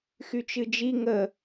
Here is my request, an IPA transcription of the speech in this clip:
x y t͡ʃ ɨ d͡ʒ i ŋ ə

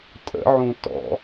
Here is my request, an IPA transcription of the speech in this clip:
tʼ ə̰ ʕ ũ t ɔ̰

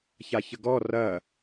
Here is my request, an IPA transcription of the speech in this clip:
ç a ç ə ɡ ɔ r ɐ

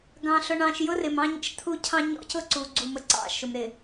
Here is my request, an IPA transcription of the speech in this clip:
ɡ ɑ̃˨ ɬ ʊ˨ ɳ ɑ̃˨ ʃ j ʊ˦ r ɪ˨ m ɑ̃˦ ɲ ə̰˦ ʃ t̪ʰ u˦ cʰ ɑ̃˦ ɲ ɔ̰˦ c ʊ˦ ǀ u˨ ɡ͡ǀ u˨ m ə˨ ǀ ɑ̰˦˨ ʃ ʊ˨ m ɾ ɪ˨

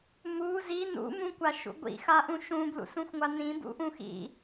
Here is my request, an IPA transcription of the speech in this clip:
m u z i n ṵ m ũ kʷ a ʃ ṵ ɡʷ ḭ x a ʔ ũ ʃ ũ b l ṵ s ũ xʷ ŋʷ a n ĩ b ṵ ʔ ũ x ḭ

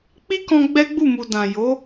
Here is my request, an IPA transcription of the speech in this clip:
k͡p i˦ k ɔ̃˧ ɡ͡b ɛ˦ ɡ͡b u˦˨ m u˨ d ã˨ j o˨˦

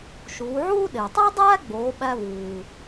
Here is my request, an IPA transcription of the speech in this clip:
ʃ uː˩˧ ʕ uː˥ ɗ e˩ tˤ o˥ dˤ æː˥ ɡ͡b oː˩˧ ɓ æ˧ v uː˩

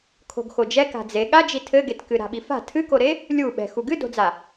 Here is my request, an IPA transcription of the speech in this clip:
kʰ o̤ ɡ x o d͡ʒ ɛ k a̤ d͡z e ɠ a d͡ʒ i tʰ ɘ ɡ e t k ɨ ɾ a̤ ɓ i f a̤ tʰ ɨ k o ɾ e | lʲ u ɓ ɛ̤ x u ɡ ɨ d o̤ d͡z a

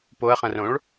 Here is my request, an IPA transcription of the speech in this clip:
p o ɐ̯ χ ɐ̃ r õ ɭ

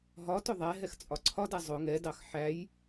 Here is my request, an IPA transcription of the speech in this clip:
ɦ ɒ t ʊ ðˤ æ ɦ ɛ x t͡sʼ ɒ ǀʰ ɒ d æ zˤ ʊ ŋ ɛ d ɑ x ħ æ j

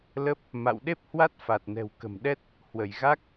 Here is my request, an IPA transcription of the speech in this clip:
l ə˦˥ p̚ | m a̰˧˨ w ɗ e˦˥ p̚ h w a˦˥ t̚ f a˨˩ t̚ n ɛ̤˨˩ w k ə̤˨˩ m ɗ ɛ˦˥ t̚ | h w ə˧˩ j ɣ a˦˥ k̚

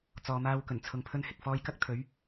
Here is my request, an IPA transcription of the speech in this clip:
t͡s ɔː˨ m aː˧ w k ɵ˨˩ n t͡sʰ ʊ˨ ŋ pʰ ɵ˧ n h ɪ˨ k̚ f ɔː˧ j k ɐ˥ k̚ t̪ʰ ɵ˨˥ ɥ

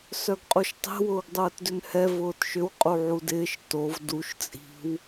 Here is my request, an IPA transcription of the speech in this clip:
s œ ɡ qʼ u ʃ tˤ e̤ w ʊː ɡ dˤ ʊː t d ʏ n h ɛ v ʊː t ʃ ʏ w qʼ u ʕ u d ɪː ʃ t o v d u ʃ t͡sʼ i̤ w

